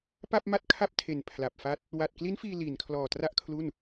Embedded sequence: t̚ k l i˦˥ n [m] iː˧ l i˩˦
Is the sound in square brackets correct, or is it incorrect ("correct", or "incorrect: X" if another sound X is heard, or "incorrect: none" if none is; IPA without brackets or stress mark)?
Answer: incorrect: f